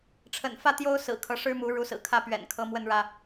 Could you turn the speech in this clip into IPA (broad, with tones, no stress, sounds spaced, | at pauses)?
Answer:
ʈ͡ʂʰ ə̰˨˩ n f ä˥˨ t̪ j o˦ ʊ̯ s ɹ̩˨˩ kʰ ɤ˨˦ ʂ ɻ̩˦ m u˨˦ ɻ u˨˦ s ɹ̩˨˩ kʰ ä˥˨ p ɥ ɛ̰˨˩ n kʰ ɤ˨˦ m w ə˥˨ n ɻ ä˥˨